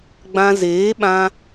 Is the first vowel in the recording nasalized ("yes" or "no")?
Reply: yes